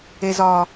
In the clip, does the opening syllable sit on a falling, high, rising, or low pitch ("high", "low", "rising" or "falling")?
low